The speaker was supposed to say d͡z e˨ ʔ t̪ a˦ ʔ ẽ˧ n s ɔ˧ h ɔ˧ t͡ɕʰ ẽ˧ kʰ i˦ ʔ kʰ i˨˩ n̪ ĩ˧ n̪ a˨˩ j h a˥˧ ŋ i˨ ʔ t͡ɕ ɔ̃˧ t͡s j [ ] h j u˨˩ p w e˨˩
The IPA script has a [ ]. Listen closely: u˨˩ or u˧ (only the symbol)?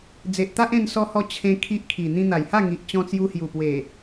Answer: u˧